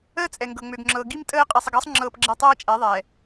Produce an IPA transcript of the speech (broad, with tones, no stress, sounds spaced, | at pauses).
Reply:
əː˦ t͡sʼ ɛ˨ ŋ ɡ ɤ˨ ŋ͡m ø˨ ɡ ŋ͡ǁ ɤː˨ ɡ i˦ m tʼ əː˦ qʼ e˨ sˤ ə˨ ɡ əː˦ sˤ ŋ͡ǁ ɤː˦ p ɡ͡ǁ ɛ˦ tˤ ɤː˦ t͡ʃʼ ɛ˨˦ ðˤ ɛː˨